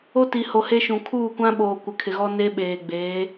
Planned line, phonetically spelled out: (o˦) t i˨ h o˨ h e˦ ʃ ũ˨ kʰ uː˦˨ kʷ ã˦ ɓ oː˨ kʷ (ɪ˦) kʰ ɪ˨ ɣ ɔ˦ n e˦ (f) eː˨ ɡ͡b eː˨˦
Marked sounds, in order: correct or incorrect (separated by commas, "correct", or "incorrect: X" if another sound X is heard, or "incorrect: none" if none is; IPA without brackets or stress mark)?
correct, incorrect: ɪ˨, incorrect: ɓ